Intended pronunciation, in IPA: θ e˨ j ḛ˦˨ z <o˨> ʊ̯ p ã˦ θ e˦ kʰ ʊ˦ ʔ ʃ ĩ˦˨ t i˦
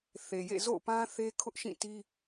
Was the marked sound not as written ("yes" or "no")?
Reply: yes